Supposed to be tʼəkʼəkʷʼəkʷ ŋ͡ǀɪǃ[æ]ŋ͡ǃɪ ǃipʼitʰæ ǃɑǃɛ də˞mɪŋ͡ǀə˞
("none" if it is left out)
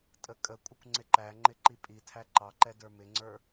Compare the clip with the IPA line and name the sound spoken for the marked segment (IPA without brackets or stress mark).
æ